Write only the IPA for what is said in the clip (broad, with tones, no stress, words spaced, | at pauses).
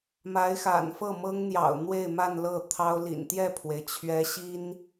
ma˧˥ɪ̯xa̰˨˩nfɤ˥˩ mɤ˥ŋn̪jɑ̰˨˩ʊ̯ n̪we˥˧ɪ̯ma˥˧n lɤ˥˩t̪ʰɑ˥ʊ̯lḭ˨˩n t̪jɛ˥˩pʰwe˩ɪ̯t͡ɕʰɥɛ˧˥ɕi˥n